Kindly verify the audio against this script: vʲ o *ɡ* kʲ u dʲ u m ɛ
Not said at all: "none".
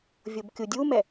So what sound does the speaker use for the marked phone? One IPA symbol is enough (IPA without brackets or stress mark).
b